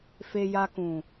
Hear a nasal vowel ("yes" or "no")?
yes